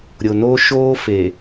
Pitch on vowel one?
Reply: low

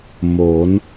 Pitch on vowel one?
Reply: rising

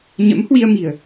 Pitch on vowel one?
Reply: rising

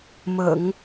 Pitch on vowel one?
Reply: low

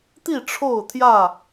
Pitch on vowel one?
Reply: falling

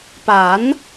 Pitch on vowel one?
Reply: rising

